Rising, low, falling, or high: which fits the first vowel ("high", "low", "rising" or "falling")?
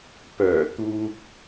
low